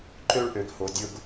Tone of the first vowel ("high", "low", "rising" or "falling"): high